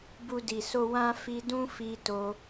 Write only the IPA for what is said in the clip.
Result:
bu˧di˨so˧ wã˦ fi˧dũ˦fi˧to˧

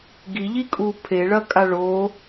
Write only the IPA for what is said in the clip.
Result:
ɡiʎikʼu pʰeɭɐkʼa ɭo

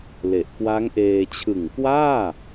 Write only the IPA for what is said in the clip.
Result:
le˨˩ʔkwa˦˥ŋʔeː˧ t͡ɕʰɯ˨˩ŋkwaː˥˩

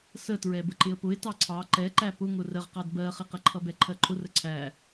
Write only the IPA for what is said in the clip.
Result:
sətɹɛ bəǃɪə̯pʊɪ̯ tɑǀʰɑ ǃɛǃæ pʊŋʊ rəʁqɑd bɜχɪqəǃʰʌ bɛǃʰɜǃʰʊrə ǀʰæ

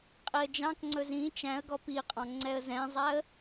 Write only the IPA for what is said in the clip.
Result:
qʼiə̯d͡ʒɑ̃kŋ͡ǀɵ zĩ t͡ʃæ̃ə̯ɡɔ piqʼɔ̃ ŋ͡ǀɛə̯zɛ̃zˤæə̯

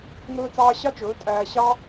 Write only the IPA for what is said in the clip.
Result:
ŋɵː˦t͡sɑː˦ ɕɑ˦t͡ʃɵː˨˦ tʼæː˧ ɕɑ˦

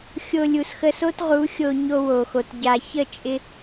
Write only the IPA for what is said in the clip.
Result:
xʲo˧ lʲu˩sxə˧so˥tʁu˩˥ xʲo˧ ɲo˧wo˩xo˩t ɟa˩çə˥˩t͡ʃʼɪ˧

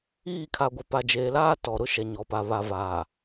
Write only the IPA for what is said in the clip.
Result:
iː˦˨kʰa˨ɡʷɪ˨ pa˨d͡ʒeː˨laː˦ tɔ˨ɾʊ˦ ʃɛ˨ɲɔ˨pa˨ βa˨vaː˨

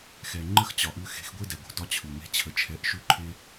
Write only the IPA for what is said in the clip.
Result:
xɛ˩ ŋ͡ǃə˥xt͡ɕɒ˩ʔʉ˧ xe̤˧xɡʷe˥dɛ˩ɡʷə̤˩ dɒ˥t͡ɕʰʉ˩me̤˥t͡ɕʰə˧ t͡ʃʰɛ˧ʔʃʉ˥ǃʰe˥

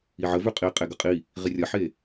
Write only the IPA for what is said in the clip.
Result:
iʕə vʉqʼi qʼeɡəqʼi | ʁirʲɐħe

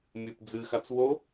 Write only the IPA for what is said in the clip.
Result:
mʲɨp d͡zɨxat͡s wo

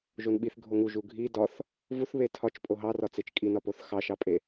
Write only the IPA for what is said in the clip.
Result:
ʒonɓiθ ɡʱoŋu ʒuɡʱi dɒθ | vuθβe tʰɒt͡ʃ pʼoɦɑrɒ t͡set͡ʃkʼinɒpoθ xɑʃɑpʼe

